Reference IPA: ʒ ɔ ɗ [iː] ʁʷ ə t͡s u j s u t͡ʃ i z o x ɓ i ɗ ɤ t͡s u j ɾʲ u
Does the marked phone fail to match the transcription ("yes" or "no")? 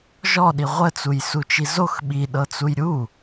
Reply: yes